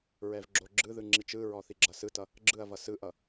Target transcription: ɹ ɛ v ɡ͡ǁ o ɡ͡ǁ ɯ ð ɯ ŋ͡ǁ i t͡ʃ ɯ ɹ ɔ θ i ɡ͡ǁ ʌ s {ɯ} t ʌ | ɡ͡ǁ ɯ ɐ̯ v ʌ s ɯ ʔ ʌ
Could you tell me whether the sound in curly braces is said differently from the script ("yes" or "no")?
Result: no